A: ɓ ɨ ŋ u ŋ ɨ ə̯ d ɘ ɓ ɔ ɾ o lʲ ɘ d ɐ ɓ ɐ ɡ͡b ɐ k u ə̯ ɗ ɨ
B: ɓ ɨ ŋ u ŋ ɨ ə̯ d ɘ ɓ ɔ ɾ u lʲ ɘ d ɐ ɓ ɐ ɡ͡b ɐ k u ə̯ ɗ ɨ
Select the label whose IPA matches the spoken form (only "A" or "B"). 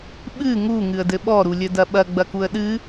B